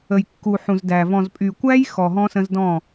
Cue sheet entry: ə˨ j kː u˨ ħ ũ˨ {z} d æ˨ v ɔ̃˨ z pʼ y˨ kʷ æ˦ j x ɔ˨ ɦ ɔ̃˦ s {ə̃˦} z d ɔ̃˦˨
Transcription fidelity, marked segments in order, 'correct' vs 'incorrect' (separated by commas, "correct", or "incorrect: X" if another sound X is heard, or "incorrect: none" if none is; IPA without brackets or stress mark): correct, correct